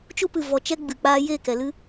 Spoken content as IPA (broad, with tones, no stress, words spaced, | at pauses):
t͡ʃu˧pɨ˨ vɔ˨t͡ʃɛ˧ ɡ͡bɨ˨ k͡paː˧ jeː˦˨kɛ˨lɨ˦